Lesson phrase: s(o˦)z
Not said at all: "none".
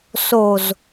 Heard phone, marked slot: o˨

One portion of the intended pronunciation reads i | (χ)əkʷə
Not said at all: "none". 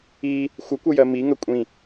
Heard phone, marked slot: xʷ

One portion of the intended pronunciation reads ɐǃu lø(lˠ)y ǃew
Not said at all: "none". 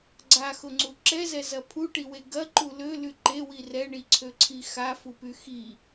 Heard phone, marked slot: l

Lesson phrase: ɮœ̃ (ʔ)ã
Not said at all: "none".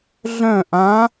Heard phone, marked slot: ʔ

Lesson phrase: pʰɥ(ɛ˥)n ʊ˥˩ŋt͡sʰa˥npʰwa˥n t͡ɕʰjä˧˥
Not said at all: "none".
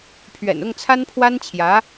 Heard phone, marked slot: ɛ̰˨˩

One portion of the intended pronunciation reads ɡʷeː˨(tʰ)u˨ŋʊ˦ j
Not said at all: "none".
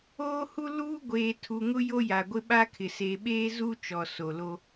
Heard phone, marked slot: tʰ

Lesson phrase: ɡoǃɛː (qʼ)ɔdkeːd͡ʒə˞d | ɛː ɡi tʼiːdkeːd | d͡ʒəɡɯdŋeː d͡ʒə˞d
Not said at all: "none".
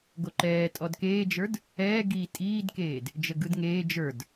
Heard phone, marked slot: tʼ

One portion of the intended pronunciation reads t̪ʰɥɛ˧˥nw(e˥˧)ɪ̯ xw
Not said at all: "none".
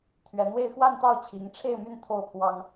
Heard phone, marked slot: e˥˧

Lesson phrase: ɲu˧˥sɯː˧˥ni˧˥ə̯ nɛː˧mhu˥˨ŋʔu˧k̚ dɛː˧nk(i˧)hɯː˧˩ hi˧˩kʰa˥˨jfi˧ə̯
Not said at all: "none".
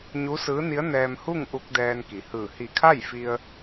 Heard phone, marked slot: i˩˧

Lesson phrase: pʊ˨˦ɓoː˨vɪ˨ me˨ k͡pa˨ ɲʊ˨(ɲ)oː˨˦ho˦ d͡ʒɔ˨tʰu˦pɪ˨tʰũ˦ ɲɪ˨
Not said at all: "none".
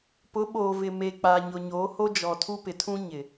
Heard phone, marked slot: ɲ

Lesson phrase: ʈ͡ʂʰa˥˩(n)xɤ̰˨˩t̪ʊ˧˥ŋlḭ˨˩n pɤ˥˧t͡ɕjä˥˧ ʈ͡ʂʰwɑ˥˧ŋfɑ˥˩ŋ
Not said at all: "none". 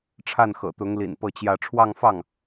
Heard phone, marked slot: n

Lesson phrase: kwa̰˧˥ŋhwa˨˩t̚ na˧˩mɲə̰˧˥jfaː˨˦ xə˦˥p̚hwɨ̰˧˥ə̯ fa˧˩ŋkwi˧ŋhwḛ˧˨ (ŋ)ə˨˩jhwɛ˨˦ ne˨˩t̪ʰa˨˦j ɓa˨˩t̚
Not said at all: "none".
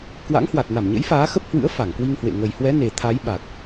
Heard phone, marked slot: ŋ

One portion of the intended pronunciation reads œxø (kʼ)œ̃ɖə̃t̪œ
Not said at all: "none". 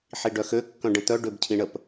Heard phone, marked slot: kː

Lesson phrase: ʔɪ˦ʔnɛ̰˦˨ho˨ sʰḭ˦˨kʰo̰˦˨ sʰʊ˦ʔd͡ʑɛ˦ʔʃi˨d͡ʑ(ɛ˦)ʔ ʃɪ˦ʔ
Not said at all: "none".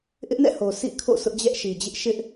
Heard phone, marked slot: ɪ˦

